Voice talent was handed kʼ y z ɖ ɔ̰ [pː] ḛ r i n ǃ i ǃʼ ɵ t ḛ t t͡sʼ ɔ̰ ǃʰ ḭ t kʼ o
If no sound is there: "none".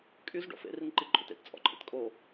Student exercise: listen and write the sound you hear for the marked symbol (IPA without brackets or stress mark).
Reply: f